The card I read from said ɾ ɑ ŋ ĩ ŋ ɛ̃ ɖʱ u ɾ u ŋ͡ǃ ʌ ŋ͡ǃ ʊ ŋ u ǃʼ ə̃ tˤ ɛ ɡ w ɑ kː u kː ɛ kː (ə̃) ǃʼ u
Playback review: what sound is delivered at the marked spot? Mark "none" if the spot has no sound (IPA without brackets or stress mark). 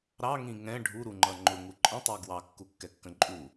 ə̃